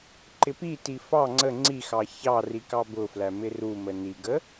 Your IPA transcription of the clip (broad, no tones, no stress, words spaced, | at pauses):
ǃɪpiti fɑ ŋ͡ǀə ŋ͡ǀixɑ çɑ rikɑbʊflæ mɪrumə niɡə